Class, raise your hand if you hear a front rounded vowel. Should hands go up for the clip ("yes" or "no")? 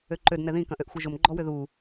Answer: yes